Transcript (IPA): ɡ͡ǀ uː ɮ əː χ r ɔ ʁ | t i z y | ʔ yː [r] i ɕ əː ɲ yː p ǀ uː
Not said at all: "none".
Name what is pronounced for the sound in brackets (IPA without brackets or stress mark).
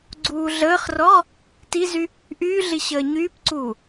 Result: ɮ